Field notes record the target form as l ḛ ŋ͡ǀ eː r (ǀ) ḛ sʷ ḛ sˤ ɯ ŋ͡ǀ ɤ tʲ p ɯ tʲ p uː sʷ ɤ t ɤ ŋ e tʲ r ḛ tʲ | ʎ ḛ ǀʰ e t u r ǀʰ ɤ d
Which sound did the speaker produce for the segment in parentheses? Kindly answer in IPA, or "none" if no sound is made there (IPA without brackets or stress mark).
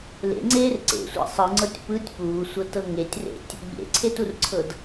ǀ